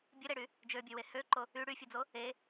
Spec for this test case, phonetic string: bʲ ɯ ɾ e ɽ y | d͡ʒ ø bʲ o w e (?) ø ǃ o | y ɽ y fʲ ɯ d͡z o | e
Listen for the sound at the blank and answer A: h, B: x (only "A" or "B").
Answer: A